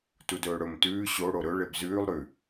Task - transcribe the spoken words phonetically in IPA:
t u d ɵː ɽ ɵ m t ʉː ɕ o ɽ o ɾ ɵ ɭ e b z ʉː lˠ ɾ ʉ

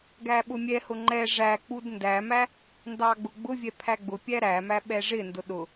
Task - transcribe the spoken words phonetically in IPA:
ɡ æ ɓ ʊ mʲ ɛ h ʊ ŋ͡ǃ ɛ ʐ æ k͡p u d n d æ m æ | n d ɑ ɡ͡b ʊ ɡ͡b ʊ vʲ ɛ pʰ æ ɡ͡b ʊ pʲ æ ɾ æ m æ ɓ ɛ ʐ ɪ n d ʊ ɗ ʊ

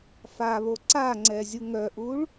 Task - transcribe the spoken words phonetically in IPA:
f a β o ǀ a ŋ͡ǀ ɛ zʲ u ŋ œ ʔ u ɭ

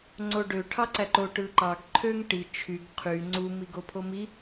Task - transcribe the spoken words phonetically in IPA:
ŋ͡ǀ o ɖ ø ʈʰ ɑ ǀ æ ǃ o ʈ ɯ ǃ ɑ ɡ ǃʰ ø ŋ ʈ i t͡ʃʰ y ɡ qʰ y ŋ͡ǀ u m i ɡ o pʰ o m i

